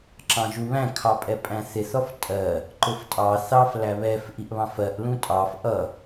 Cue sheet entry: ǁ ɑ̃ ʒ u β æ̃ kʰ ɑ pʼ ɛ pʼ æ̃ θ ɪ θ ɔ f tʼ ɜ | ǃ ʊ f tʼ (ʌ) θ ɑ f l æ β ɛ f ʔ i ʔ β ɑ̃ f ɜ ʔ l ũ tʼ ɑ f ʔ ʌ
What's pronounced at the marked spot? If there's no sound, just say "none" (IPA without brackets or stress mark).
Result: ɑ